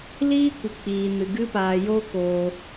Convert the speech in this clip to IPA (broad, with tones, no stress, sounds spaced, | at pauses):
l iː˦ kʷ ɨ˧ k͡p iː˧ n ɨ˧ ɡ ɨ˦ p aː˧ j oː˦ k oː˧